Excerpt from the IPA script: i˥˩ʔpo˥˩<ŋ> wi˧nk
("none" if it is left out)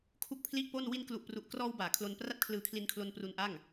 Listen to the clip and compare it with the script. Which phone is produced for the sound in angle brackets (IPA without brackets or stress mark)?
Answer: n